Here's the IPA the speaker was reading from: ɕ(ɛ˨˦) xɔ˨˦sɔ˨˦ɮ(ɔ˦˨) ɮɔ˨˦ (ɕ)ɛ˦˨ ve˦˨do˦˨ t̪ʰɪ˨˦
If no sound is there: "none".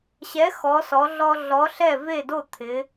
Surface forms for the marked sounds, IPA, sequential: ɛ˨˦, ɔ˦, ɬ

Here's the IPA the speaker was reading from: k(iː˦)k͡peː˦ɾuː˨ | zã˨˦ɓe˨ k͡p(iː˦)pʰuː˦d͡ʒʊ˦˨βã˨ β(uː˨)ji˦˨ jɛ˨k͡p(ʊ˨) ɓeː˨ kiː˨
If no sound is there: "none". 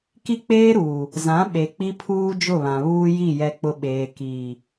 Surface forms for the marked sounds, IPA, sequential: i˦, i˦, uː˦, ʊ˨

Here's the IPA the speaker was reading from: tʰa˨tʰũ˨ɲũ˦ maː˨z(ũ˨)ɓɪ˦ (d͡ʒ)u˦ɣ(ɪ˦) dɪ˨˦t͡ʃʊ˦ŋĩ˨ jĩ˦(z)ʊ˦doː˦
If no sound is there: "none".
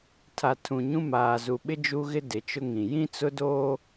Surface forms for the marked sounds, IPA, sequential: u˨, d͡ʒ, ɪ˦, t͡s

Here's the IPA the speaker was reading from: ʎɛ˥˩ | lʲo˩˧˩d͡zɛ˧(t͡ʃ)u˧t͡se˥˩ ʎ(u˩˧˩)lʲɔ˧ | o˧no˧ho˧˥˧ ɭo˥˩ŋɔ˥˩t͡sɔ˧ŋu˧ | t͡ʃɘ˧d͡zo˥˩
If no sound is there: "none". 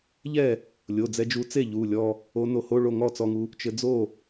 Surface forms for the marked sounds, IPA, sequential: d͡ʒ, u˩˧˩

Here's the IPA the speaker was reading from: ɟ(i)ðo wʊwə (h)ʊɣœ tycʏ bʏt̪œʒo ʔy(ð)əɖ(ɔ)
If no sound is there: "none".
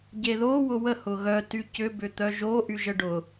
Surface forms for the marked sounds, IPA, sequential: e, h, ʒ, ʊ

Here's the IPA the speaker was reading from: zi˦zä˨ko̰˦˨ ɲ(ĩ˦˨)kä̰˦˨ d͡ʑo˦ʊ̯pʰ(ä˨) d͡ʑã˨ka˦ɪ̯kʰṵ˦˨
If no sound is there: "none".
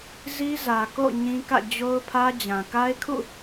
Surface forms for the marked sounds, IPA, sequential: ĩ˦, ä˦

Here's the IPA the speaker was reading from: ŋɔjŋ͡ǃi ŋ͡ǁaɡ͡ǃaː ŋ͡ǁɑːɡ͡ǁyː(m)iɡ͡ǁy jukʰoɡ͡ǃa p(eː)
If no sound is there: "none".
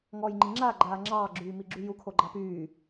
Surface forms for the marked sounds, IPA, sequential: m, yː

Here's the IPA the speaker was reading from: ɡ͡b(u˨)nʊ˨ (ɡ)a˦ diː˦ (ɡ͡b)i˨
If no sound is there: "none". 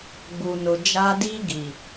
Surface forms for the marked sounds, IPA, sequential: u˨, d͡ʒ, ɡ

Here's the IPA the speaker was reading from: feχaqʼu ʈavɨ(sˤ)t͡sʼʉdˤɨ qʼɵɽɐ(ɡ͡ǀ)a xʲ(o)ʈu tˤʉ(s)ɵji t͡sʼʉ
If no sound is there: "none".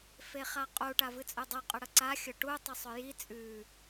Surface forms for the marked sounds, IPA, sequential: none, ǀ, ɵ, sˤ

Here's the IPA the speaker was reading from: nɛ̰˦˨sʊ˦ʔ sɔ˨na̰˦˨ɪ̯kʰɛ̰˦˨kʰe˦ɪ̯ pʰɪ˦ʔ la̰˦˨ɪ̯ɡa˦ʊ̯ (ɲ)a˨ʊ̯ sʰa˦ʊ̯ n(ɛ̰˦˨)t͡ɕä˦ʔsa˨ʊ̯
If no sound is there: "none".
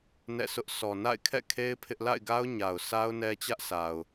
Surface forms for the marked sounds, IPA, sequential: ɲ, ɛ˦

